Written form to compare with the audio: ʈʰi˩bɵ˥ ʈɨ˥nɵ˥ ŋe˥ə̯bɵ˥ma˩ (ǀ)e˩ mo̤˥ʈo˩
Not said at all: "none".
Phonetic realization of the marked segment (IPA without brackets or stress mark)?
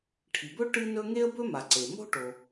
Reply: ǀ